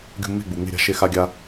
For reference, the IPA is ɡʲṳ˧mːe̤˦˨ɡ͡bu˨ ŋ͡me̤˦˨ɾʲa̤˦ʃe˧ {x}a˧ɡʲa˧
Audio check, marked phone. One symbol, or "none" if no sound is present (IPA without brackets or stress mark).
x